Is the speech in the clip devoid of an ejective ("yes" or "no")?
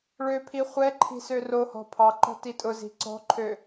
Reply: no